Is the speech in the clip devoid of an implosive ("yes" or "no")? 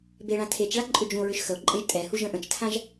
yes